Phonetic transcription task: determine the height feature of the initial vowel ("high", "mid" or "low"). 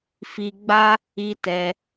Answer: high